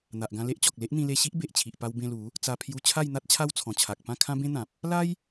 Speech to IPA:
n̪a˨ʔɡã˧le˦ʔt͡ɕɔ˨k̚ le˦ʔn̪ĩ˧le˧ ɕi˦ʔbe˨ʔt͡ɕʰi˨ʔpa˧w bẽ˧lu˨˦ | t͡sa˧pʰju˧ t͡ɕʰa˥˧jn̪a˦t̚t͡ɕʰa˦w t͡sʰɔ̃˨˩t͡ɕʰa˨k̚pã˥˧ kʰã˦bẽ˦n̪ã˨p̚ | la˦j

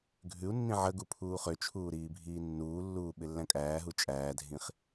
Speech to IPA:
ɡʱʉu̯nːĩ ʕəɡu pʰuːχøt͡ʃʰuː ɾiːbʱiːnːuːlːuː ɓɪlːæ̃kʼæːɦu t͡ʃʼæːdʱĩχ

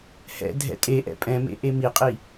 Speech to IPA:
hɛ̰ dʱɛ̰tʼeʔɛ̰ pʼɛ̃mḛ ʔemiqʼi

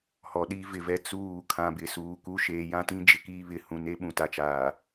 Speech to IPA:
hɔ˨ɗi˦vɪ˨vɛ˦ t͡suː˦˨ kʰã˨bɪ˨ suː˨ku˦ ʃeː˨jã˦tĩ˦ d͡ʒɪ˨kiː˦ βɪ˨ hũ˨ne˦ ɓũ˨ta˨t͡ʃaː˨

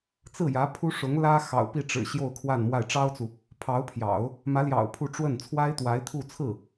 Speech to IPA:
t͡sɹ̩˥˩jä˧˥pʰu˥ ʂʊ˧˥ŋlä˥ xɑ̰˨˩ʊ̯pi˥˩ ʈ͡ʂɻ̩˨˩ ɕjo˥˧ʊ̯kʰwa˥˧n mwa˥˩ɪ̯ ʈ͡ʂɑ˥ʊ̯t͡su˨ | pʰɑ˧˥ʊ̯pʰjɑ̰˨˩˦ʊ̯ | mä˧˥ljɑ̰˨˩ʊ̯ pʰu˥˧ʈ͡ʂwə˥˩n t͡sʰwa˥ɪ̯t̪wa˧˥ɪ̯ t̪ʰu˥˧ t͡sʰɹ̩˥˩

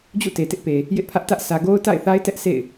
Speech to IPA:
d͡ʑṵ˦˨te˨tɪ˦ʔpe˨ | jɪ˦ʔpʰä˦ʔtä˦ʔ sä˨ ɡo˦ʊ̯ta̰˦˨ɪ̯θa˦ɪ̯tɛ˦ʔ sḛ˦˨ɪ̯

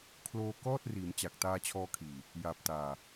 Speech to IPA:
kʰloː˧kɔː˥˩t̚riː˩˦m t͡ɕa˨˩k̚taː˧t͡ɕʰɔː˧kʰiː˨˩ | jaː˨˩p̚ taː˨˩

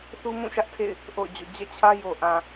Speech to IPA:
θu˦mũ˦˨ʃä˦ʔ tʰḛ˦˨ɪ̯ | ʔo̰˦˨ʊ̯d͡ʑo̰˦˨ d͡ʑɛ̰˦˨t͡ɕʰä˦jo˨ ʔã˨

